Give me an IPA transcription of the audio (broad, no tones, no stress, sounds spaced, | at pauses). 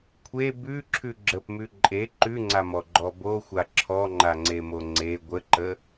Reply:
kʷʰ e b ʉ ǁʰ ʉ ɡ͡ǁ ə p m ʉ ǃʼ e ǃ ʉ ŋ͡ǀ a m ɔ ɡ͡ǃ ɔ b o xʷ a ǁʰ ɔ ŋ͡ǃ a ŋ͡ǀ e m o ŋ͡ǀ e ɡʷ ə ǃ ə